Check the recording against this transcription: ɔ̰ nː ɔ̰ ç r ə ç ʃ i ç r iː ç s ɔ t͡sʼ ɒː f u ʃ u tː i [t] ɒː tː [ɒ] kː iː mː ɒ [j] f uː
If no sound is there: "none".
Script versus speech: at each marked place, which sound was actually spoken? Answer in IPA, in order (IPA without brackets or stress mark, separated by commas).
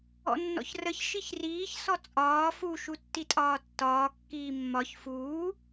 tʼ, ɒː, ç